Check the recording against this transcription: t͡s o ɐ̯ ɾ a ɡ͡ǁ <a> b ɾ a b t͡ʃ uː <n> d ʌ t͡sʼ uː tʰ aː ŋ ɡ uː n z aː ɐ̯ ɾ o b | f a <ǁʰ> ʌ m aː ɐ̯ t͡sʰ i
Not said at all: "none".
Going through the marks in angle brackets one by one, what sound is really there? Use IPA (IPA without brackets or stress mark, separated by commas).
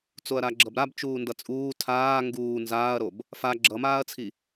ʌ, n, ɡ͡ǁ